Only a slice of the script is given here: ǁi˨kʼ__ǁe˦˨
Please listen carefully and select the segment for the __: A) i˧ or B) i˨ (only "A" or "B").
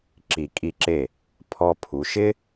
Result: A